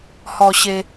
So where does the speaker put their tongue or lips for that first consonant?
throat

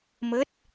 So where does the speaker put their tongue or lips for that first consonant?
lips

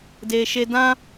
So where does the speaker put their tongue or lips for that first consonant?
tongue tip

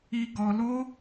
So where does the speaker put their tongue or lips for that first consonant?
velum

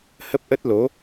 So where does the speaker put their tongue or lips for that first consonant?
throat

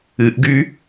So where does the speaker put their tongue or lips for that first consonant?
throat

